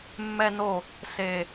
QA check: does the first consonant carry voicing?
yes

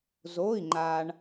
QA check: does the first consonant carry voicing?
yes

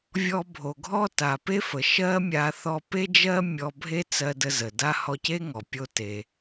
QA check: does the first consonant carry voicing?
yes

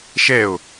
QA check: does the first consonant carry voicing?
no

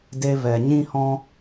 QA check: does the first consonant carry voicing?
yes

